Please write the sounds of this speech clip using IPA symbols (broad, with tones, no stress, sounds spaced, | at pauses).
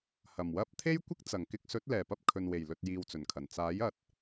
h ɐ˨˩ m w ɐ˥ p̚ t̪ʰ e˥ j kʷ ɪ˥ k̚ t͡s ɐ˨˩ ŋ k ɪ˧ k̚ s ɵ˨˥ t̚ l ɛː˨˩ p ɐ˧ p̚ kʰ ɵ˨ n w e˨˩ j l ɵ˨ t̚ j iː˨ w t͡s ɵ˨˩ n kʰ ɐ˨˩ n t͡s aː˨˥ j ɐ˨ t̚